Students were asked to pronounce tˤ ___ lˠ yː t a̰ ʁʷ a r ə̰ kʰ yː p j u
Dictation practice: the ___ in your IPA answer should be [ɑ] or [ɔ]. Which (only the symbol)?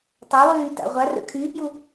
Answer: ɑ